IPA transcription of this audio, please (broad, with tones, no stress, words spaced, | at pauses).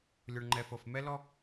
lʲo˩ɳŋ͡ǃɛ˩ fɤ˩f mɛ˥ lɔ˥